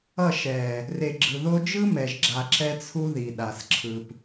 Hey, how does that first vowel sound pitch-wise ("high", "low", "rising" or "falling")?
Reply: falling